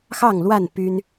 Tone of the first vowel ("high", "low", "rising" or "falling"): falling